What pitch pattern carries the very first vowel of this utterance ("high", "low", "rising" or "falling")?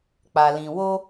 low